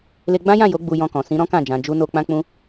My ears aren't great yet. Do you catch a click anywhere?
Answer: no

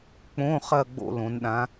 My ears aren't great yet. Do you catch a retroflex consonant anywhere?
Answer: no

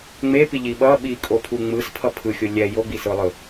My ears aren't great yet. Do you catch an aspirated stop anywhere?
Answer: yes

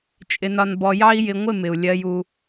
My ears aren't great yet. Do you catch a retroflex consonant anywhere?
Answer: no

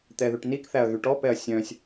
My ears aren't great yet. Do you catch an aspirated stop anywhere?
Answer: no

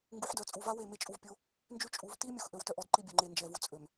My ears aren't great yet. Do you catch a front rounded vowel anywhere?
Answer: yes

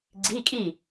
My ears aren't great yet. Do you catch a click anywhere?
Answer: yes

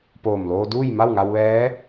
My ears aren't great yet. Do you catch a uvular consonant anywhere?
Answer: no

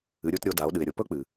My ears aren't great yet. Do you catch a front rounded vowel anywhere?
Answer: no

